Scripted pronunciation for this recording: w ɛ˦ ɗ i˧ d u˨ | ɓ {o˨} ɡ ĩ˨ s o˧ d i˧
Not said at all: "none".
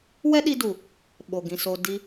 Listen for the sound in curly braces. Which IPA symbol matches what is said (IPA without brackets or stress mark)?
o˨